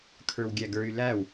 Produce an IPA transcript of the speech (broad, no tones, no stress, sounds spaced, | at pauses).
kʰ ə˞ w ɡʲ æ ɡ ə˞ y̯ l æ w